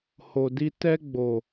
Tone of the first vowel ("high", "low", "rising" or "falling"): low